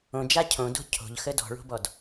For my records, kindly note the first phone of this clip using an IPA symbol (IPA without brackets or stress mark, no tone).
õ